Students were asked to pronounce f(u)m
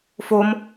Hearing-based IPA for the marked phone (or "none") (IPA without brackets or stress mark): o